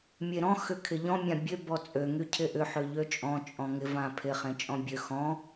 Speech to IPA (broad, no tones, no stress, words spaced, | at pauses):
mʲeɾɔ̃ xʏkʰɪʎɔ̃ mʲãbʲø bɔt͡sʼø ŋycʰɪʔʏ ħøʎøt͡ʃʼɔ̃ t͡ʃʼɔ̃ŋɪ vãpʰɪ χẽt͡ʃʼɔ̃bʲø xɔ̃